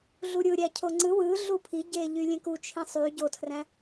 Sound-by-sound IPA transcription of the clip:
ɮuɾʲɯ ɾʲæcʰoŋ͡ǀɯ wɯɮu pʰiɟeʎy lʲẽku t͡ʃʰĩsˤy ɟotʰræ̃

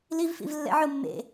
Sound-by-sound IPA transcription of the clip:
livfḭv lːɛ̰ʕʊ mːḛ

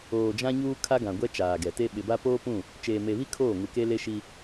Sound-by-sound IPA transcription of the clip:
oː˨ d͡ʒã˦ɲuː˦ kʰa˦ɡã˨ ɡʷɛ˦t͡ʃaː˨ɡɛ˨te˦ ɓɪ˨ba˦ poː˦pũ˦˨ | t͡ʃeː˨me˨βi˦ kʰoː˦˨ ŋu˨ke˦le˦ʃi˦

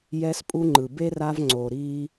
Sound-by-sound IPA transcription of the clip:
jɛ˧spʼu˧ŋ͡ǃɯ˨ be˦ra˧v ŋ͡ǀo˨ɾi˧

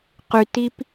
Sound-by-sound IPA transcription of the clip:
qytip

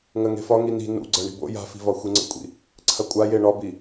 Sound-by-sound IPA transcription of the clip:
ŋɜŋe̤fɒ ŋini̤ nṵ ɡ͡ǀɜɳi̤bo̰ ja̤fi̤vɒ xʷiŋ͡ǀə̰kʷʼḭ | ǀʰɐkʷʼa jeɳɒbi

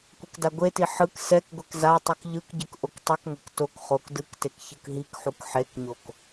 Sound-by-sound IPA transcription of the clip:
kʷekdaɡʷeti ħɯk sɛk ɡʷɛkzatˤɯk ʎɯkɟɯk ʔoktˤɯkŋʷɛk tok χok dɯktek çɯkɦikħuk ħekɲok

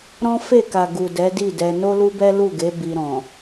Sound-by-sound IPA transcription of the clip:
ɾɔ̃˦ fe˦˨ka˨ ɡu˨dɛ˨˦di˦˨dɛ˧ no˦lu˦bɛ˦ lu˦˨ɡe˨˦ bi˧ɾɔ̃˨

